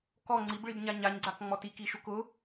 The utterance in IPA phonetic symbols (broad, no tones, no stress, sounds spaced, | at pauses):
k ɔ ŋ͡ǀ i b ɭ i b ɲ a ɲ a ɲ ɡ͡ǀ a k ŋ͡m ɔ t i k i ʃ u k ʊ